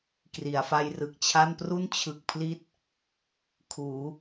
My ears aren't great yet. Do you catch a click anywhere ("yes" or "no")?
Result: no